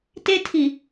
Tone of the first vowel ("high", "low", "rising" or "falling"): high